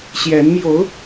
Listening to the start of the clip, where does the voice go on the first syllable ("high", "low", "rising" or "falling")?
rising